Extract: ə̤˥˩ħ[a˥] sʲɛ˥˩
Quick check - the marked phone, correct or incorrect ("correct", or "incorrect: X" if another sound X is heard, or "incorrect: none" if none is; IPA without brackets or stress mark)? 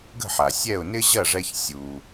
incorrect: a˩